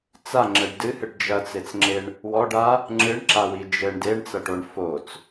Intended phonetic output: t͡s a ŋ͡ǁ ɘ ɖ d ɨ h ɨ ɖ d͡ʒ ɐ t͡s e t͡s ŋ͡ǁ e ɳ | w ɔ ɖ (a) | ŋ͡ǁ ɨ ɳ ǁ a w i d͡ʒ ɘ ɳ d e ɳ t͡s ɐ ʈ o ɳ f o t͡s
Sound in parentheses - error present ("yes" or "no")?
no